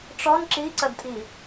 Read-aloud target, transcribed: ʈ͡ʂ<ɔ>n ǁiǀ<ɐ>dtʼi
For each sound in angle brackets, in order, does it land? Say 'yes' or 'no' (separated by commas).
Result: yes, yes